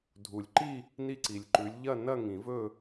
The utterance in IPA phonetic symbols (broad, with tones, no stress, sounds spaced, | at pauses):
dʱ u˨˩˦ lʲ ǃ i˥˧ | n i˥˧ ǀ i˨ lʲ ǃ ʉ˨˥ lʲ ʎ ɐ˥˧ n ɐ˥˧ ŋ ĩ˨˩˦ v ɵ˥˧